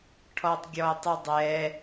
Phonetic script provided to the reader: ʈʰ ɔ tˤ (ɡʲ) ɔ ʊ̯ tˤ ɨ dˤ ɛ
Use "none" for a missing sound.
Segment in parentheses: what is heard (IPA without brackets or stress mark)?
ɡʲ